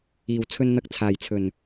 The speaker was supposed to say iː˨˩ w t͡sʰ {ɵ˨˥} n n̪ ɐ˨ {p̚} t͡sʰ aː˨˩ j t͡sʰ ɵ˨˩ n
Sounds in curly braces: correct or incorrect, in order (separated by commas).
incorrect, incorrect